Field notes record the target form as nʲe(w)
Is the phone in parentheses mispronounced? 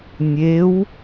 no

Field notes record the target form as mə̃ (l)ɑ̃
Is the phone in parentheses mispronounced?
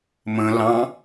no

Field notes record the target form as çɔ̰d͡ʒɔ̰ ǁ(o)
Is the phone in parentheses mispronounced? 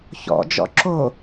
no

